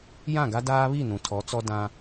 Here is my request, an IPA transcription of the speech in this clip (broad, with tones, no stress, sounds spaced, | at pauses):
j ã˦˨ ɡ a˦ d aː˦ β i˦˨ n ũ˨ tʰ ɔ˨˦ t͡s ɔ˦ d ã˦